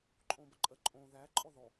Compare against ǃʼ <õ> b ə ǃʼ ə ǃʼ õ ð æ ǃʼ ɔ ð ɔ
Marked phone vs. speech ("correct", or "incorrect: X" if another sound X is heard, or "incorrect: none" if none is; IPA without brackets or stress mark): correct